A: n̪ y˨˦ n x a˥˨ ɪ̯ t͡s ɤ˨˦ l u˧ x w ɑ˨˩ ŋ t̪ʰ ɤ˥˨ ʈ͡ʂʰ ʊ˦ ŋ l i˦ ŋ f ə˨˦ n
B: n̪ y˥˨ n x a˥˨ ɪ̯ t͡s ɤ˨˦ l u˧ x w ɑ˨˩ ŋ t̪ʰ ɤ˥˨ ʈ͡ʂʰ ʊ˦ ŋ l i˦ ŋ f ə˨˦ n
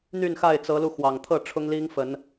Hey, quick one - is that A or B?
B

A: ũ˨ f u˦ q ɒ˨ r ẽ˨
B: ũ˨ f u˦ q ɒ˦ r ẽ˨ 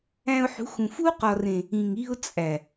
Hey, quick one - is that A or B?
A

